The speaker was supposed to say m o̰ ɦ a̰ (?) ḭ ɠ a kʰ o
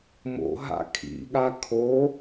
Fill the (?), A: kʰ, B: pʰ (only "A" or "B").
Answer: A